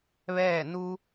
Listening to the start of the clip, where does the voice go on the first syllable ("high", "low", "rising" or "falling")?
falling